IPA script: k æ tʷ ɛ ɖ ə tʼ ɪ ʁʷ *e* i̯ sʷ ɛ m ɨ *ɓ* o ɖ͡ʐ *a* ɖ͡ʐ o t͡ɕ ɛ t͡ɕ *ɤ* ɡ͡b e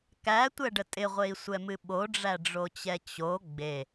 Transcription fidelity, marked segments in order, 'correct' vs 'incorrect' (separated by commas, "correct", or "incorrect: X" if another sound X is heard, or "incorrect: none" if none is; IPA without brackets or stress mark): correct, correct, incorrect: æ, incorrect: o